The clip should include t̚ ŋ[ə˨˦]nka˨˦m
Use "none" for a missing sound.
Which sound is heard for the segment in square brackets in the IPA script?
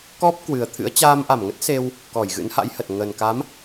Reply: ə˨˩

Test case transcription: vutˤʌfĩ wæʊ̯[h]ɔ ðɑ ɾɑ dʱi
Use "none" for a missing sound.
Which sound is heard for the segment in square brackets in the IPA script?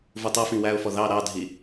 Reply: f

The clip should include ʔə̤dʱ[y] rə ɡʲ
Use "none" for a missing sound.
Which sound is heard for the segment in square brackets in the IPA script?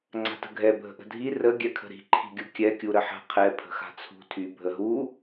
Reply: i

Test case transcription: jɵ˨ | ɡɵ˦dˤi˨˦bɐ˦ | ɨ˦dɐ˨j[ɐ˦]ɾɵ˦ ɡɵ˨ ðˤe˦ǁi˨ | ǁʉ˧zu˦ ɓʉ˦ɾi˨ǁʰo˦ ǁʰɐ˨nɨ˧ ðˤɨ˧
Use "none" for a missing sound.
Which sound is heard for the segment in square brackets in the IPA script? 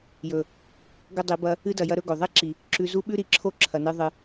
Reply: ɐ˦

